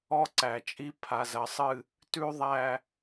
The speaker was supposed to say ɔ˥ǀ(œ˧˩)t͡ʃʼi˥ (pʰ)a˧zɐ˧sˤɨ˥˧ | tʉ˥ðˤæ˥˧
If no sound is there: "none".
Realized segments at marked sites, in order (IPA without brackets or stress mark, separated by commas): æ˧˩, pʰ